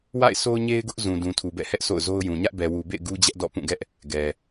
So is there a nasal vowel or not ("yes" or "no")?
yes